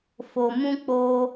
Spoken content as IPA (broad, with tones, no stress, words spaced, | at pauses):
fo˨mũ˧ k͡po˧